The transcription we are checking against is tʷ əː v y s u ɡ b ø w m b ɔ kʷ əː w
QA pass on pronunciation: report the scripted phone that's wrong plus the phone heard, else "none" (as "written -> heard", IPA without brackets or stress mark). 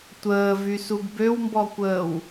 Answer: none